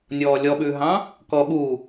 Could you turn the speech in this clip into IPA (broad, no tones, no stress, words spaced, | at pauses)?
nʲɔːlʲɔɓʉːɦɑ̃ | kɔ ɠu